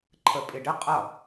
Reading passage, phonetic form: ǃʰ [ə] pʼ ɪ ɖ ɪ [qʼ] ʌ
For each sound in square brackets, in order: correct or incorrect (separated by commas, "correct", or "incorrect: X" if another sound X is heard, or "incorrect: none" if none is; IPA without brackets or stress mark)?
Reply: correct, correct